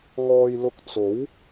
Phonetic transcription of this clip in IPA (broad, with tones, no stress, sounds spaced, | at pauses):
ŋ ɔː˧ j l ʊ˧ k̚ t͡s o˨˥ w